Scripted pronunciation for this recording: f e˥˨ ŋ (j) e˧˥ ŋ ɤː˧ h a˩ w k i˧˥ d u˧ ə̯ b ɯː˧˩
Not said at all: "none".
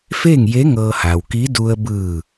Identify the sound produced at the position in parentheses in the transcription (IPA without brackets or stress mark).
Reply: j